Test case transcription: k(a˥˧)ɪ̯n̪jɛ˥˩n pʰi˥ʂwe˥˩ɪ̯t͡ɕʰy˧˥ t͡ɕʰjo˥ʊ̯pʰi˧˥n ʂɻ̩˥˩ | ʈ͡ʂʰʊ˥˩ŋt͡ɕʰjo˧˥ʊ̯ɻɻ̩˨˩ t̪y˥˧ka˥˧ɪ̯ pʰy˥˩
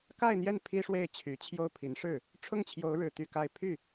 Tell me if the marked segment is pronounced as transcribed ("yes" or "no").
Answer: yes